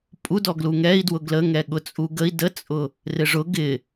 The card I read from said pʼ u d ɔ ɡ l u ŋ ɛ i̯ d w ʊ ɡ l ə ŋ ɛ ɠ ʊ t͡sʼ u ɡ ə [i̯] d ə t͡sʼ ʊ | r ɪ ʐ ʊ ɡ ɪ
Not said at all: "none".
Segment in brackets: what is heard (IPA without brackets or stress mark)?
i̯